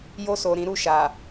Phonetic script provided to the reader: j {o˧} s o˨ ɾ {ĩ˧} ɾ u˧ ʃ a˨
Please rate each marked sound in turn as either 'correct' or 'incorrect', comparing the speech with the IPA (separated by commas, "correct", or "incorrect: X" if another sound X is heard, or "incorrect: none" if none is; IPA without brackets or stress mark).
correct, incorrect: ĩ˨